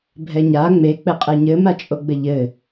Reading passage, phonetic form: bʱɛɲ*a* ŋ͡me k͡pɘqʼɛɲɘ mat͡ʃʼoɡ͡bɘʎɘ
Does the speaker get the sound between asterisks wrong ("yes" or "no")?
no